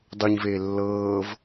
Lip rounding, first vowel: rounded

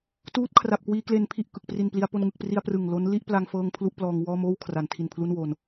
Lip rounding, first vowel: rounded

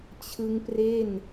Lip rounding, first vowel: unrounded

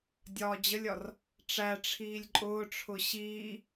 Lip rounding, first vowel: rounded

